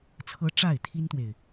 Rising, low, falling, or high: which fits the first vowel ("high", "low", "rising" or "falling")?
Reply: high